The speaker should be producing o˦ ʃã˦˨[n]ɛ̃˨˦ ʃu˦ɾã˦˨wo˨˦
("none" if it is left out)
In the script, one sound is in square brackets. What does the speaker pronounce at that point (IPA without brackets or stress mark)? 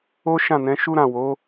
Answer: n